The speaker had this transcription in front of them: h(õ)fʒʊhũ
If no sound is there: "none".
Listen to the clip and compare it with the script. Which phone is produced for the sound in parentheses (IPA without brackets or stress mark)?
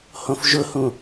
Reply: õ